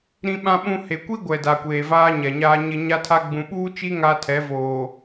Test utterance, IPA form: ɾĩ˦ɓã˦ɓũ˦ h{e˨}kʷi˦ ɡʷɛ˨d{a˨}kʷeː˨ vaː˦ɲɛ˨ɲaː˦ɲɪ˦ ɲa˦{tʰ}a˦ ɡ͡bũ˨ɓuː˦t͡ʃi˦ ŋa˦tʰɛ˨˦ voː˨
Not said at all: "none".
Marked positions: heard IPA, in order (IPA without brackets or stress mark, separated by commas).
e˨, a˨, tʰ